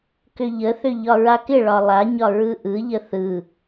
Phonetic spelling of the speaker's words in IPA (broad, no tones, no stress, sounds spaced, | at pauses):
k ʏ ʎ ə θ ʏ ʎ ɒ ɹ a k ɪ ɭ ɒ lˠ a ɲ ɒ ɹ ɯ ʔ ɯ ʎ ə θ ɯ